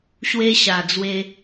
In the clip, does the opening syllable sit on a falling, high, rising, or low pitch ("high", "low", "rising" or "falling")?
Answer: high